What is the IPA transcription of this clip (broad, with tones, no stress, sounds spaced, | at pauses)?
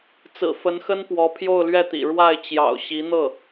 t͡s ɹ̩˨˩ f ə˧˥ n x ə˥ n p w ɔ˧˥ pʰ j o˥˧ ʊ̯ l ɥ ɛ˥˩ t̪ ḭ˨˩ ɻ w a˥˩ ɪ̯ t͡ɕ j ɑ̰˨˩ ʊ̯ ɕ i˧˥ n̪ ɤ˥˩